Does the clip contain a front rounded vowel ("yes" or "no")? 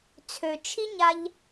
yes